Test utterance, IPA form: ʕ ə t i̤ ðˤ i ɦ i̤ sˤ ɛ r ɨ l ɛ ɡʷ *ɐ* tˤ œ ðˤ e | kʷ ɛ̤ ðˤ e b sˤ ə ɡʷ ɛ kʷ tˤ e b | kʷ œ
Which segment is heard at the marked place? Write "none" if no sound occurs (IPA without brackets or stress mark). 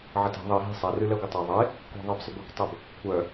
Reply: ə